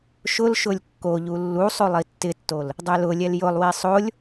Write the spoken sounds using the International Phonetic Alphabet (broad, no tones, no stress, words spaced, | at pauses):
ʃʊlʃʊlʲ kːoʎu lːusˤolˠ itːɪtːol | dˤelʊlʲɛl jʊlˠwi sˤolʲ